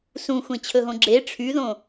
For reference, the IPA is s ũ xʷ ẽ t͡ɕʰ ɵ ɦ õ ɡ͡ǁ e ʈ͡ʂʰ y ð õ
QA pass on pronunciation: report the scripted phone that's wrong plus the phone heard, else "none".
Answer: none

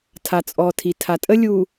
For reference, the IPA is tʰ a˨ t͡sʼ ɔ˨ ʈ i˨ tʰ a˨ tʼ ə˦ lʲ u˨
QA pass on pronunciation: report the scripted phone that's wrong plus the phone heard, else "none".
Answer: ʈ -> tʰ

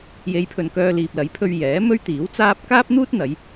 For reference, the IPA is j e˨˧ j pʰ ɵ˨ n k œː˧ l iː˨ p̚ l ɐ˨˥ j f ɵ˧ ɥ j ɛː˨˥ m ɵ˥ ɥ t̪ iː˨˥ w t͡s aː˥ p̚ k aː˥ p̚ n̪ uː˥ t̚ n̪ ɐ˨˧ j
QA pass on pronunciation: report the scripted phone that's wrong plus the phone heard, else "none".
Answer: f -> pʰ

